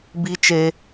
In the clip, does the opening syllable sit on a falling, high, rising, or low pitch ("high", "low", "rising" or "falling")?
high